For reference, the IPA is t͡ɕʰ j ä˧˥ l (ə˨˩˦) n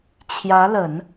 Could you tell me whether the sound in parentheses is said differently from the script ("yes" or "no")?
no